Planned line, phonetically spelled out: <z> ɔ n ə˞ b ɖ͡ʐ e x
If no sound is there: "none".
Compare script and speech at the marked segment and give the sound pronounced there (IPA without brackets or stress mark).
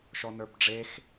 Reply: ʃ